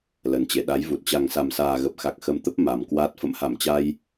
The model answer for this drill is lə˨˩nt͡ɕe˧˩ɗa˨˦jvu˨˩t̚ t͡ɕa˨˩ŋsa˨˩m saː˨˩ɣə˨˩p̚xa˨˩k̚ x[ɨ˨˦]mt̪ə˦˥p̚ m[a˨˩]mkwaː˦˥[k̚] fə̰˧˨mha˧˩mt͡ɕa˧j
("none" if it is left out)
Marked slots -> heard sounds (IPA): ə˨˦, a˨˩, t̚

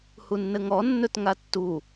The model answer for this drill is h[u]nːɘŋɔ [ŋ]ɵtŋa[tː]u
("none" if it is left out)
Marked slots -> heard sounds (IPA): u, nː, tː

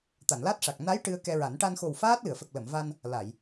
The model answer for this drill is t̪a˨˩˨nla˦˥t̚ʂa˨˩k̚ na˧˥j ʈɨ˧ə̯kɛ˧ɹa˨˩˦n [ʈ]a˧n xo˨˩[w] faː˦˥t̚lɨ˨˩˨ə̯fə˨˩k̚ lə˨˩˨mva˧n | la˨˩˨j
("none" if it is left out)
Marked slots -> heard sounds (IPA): ʈ, w

